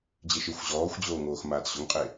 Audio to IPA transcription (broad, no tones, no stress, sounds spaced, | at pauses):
d͡ʑ e ʃ ɪ xʷ ʑ ɔː xʷ d͡ʑ oː ŋ oː x m aː t ɕ ʊ ŋ qʼ e